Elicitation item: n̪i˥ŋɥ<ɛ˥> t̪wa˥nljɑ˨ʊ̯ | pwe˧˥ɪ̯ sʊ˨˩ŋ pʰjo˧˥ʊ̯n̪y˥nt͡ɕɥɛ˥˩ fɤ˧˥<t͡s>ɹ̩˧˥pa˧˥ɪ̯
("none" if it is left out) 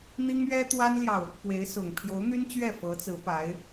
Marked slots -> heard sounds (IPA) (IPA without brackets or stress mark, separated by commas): ɛ˥, t͡s